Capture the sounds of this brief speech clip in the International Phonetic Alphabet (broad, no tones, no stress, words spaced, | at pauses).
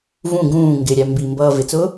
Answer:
vũ ɡũː ŋɡɪɾʲæ mbimbʌː vɪt͡sʊː